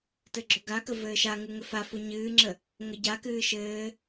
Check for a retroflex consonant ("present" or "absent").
absent